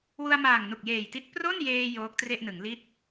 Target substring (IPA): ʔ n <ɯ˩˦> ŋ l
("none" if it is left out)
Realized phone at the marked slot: ɯ˩˦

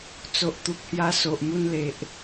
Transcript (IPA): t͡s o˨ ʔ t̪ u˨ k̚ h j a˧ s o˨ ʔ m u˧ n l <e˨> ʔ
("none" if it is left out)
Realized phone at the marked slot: e˨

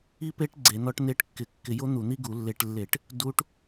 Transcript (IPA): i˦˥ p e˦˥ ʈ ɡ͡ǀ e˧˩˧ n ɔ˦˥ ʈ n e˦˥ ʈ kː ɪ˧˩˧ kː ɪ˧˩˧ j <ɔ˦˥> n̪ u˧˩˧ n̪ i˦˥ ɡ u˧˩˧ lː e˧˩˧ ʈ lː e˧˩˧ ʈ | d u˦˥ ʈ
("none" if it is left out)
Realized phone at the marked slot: o˦˥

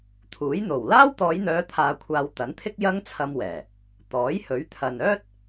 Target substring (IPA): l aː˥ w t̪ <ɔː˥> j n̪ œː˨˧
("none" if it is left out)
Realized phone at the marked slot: ɔː˨˧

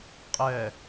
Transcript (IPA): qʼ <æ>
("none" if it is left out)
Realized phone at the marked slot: ɛ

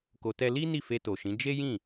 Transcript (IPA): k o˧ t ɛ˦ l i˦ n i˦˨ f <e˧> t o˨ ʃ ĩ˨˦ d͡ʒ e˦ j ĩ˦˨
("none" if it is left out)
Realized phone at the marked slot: e˧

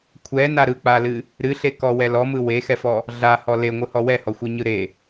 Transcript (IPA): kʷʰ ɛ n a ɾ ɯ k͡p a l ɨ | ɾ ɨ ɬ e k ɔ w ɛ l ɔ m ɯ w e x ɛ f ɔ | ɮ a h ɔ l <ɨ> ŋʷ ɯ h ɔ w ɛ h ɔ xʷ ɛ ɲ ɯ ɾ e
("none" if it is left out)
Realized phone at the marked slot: e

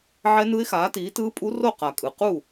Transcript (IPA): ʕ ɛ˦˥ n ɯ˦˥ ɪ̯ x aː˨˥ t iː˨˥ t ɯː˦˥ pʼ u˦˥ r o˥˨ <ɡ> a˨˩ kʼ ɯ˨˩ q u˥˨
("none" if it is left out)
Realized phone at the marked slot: q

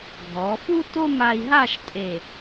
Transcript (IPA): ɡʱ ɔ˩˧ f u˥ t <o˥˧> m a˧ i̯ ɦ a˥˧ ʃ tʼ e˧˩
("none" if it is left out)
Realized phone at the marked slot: o˥˧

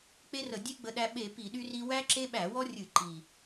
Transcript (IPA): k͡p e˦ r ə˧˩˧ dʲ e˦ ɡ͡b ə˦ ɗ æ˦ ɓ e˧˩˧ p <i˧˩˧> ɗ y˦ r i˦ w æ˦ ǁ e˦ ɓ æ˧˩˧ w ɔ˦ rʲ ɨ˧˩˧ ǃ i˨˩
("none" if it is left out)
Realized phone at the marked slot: i˧˩˧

